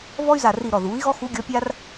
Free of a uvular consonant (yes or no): yes